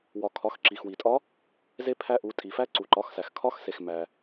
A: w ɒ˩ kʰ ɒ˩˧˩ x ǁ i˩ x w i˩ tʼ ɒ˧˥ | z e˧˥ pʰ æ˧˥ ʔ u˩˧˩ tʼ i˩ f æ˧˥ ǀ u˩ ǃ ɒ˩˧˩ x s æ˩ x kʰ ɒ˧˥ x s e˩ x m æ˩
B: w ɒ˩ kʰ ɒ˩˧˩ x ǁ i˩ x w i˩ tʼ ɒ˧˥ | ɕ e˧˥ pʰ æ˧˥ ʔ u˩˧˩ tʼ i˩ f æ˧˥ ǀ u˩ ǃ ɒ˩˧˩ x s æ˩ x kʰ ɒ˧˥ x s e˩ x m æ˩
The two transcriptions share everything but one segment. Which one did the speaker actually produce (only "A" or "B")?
A